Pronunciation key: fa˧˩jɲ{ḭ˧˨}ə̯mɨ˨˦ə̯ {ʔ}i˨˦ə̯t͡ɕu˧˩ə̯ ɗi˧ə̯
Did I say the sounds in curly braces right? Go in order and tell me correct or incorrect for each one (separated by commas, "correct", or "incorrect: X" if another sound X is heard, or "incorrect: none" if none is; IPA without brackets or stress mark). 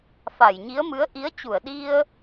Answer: incorrect: i˨˦, correct